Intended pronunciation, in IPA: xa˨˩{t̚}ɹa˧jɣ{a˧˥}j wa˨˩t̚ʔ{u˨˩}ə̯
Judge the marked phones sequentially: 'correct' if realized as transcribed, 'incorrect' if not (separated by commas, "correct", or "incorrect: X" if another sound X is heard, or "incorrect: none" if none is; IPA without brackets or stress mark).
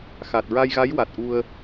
correct, correct, incorrect: u˧